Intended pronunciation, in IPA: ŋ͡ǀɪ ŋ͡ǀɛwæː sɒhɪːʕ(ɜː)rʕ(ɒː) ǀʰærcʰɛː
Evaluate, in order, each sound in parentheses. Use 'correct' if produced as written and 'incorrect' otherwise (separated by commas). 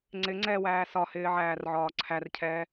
incorrect, correct